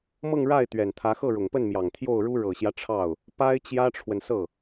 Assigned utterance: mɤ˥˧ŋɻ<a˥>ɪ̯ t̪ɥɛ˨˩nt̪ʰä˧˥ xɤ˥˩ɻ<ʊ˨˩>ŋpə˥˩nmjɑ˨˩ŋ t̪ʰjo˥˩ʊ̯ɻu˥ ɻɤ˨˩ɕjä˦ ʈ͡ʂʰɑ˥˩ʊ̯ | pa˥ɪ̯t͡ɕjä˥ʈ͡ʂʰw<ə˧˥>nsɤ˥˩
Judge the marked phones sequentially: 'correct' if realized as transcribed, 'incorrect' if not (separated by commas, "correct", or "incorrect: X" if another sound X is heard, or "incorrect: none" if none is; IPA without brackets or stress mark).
incorrect: a˥˩, correct, incorrect: ə˨